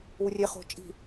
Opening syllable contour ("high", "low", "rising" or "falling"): low